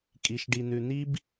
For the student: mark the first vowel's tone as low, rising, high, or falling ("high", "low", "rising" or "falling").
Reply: low